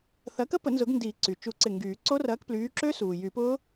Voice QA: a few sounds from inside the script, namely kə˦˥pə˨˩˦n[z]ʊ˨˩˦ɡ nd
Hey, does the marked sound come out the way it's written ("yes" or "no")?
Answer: yes